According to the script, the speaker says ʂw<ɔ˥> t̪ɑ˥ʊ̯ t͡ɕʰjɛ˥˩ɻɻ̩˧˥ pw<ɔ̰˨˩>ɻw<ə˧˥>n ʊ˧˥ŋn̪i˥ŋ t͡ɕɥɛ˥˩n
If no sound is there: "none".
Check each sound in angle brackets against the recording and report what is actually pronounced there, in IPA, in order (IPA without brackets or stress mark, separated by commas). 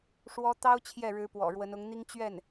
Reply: ɔ˥, ɔ̰˨˩, ə˧˥